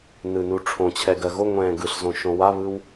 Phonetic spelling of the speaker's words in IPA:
n ɯ n u ʈ͡ʂʰ õ t͡ɕʰ ɛ ɡ ɜ ɣ o ŋʷ ɛ̃ː ɡ ɯ ɬ z õ ʃ õ w a β ɯ w

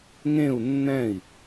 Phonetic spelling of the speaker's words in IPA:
ŋ ẽ u̯ nː ɛ̃ i̯

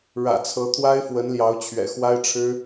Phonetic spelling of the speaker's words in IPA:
ɻ ä̰˨˩ t͡sʰ ɤ˧˥ t̪ʰ w a˥ ɪ̯ f w ə˧˥ n l j ɑ˧˥ ʊ̯ t͡ɕʰ ɥ ɛ̰˨˩ x w a˥ ɪ̯ ʈ͡ʂʰ ɻ̩˥

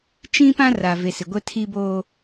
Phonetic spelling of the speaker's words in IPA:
t͡ʃ ĩ˦ p ã˦ r a˨ v e˨ s ɪ˨ ɡʷ ɛ˦ tʰ iː˦ b o˦

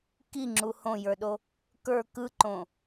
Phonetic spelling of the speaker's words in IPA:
k i ŋ͡ǁ u h õ j ə˞ ɗ o | k ə˞ k ɯ ǃ õ

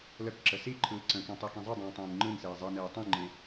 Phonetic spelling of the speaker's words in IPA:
l ə k ǁ ə s i ǃʰ ɯː ǀ ə̃ k ĩ tˤ i k ĩ zˤ ɨ dˤ ĩː tˤ ĩː n ŋ͡ǃ ɯ n s eː zˤ e n eː tˤ ĩ ŋ͡ǃ ẽ

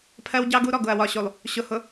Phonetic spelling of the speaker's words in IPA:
pʰ ɜ˦ w ɟ ɑ˦ ɡ u˦ ɾ ɔ˨ ɡ ʊ˨ ɐ̯ w ɒ˨ ɕ u˨ lˠ | ɕ ʊ˨ h ʊ˨

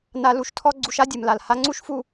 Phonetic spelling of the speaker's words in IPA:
n a˧ l u˨ ʃ tʰ ɔ˧ ɡ͡ǀ u˧ ʃ a˦ dʲ ɨ˨ m l a˨ l h a˧ ŋ͡ǀ u˦ ʃ f u˧

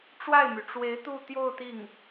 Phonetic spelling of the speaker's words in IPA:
ʈ͡ʂ w a˥˩ ɪ̯ m y˩ ʈ͡ʂ w e˧˥ ɪ̯ t̪ u˥˧ t̪ j o˥˧ ʊ̯ t̪ i˥˩ ŋ

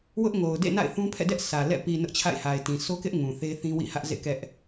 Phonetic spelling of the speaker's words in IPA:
w ʊ˦ ʔ ŋ o˨ ʊ̯ d ḛ˦˨ n a̰˦˨ ɪ̯ θ ũ˦ pʰ ɛ̰˦˨ d ɛ˦ ʔ sʰ ä˨ l ɛ̰˦˨ p i˨ n ʊ˦ ʔ t͡ɕʰ a̰˦˨ ɪ̯ h a˨ ɪ̯ t ĩ˨ s o˦ k ɪ˦ ʔ ŋ ũ˨ θ e˦ θ ĩ˦ w ḭ˦˨ h ä˦ ʔ z ḛ˦˨ k ɛ˦ ʔ

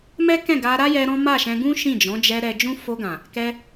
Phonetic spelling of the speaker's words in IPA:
m ɛ˦ k ɛ̃˦˨ ɡ a˧ ɾ a˦ j ɛ˧ ɾ ɔ̃˦ m a˦˨ ʃ ɛ̃˧ ɡ ũ˦ ʃ ĩ˦˨ d͡ʒ ɔ̃˨˦ d͡ʒ ɛ˧ ɾ ɛ˧ d͡ʒ ũ˦ f o˧ ɡ ã˨ | k ɛ˧

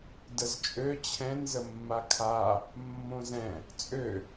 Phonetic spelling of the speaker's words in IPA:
d ə z t͡ʃʼ ø t͡ɕʰ ɛ̃ n z ə mː a kʰ a | mː õ z ɛ̃ | t͡sʼ ø

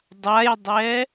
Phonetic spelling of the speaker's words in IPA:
dˤ a j dˤ ɛ

